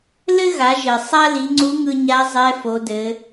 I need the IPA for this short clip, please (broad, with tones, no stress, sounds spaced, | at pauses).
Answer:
l ɘ˥ ɣ a˩˧ ʒ ɘ˩ sˤ a˥ l i˩˧ ŋ͡ǀ u˧˥ ŋ ɯ˧ ɲ a˧˥ zˤ ɛ˧˥ f o˩˧ d ɘ˩˧